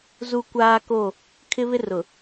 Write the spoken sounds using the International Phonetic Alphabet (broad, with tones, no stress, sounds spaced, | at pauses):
z u˦ kʷ aː˦ k o˦˨ | kʰ ɪ˦ β ɪ˦ r ʊ˨